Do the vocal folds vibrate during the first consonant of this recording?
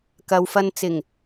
no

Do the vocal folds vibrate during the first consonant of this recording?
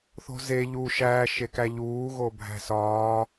no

